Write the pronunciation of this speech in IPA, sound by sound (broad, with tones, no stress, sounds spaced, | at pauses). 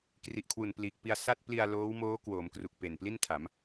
k r i˨˩ ʔ kʰ w u˨˩ n p l iː˨˩ k̚ p i˧ a̯ s a˥˩ t̚ p l i˧ a̯ l oː˦˥ w m oː˦˥ k w o˩˦ m k r u˨˩ k̚ p e˨˩ n p l i˥˩ n tʰ a˩˦ m